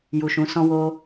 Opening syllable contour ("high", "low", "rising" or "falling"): low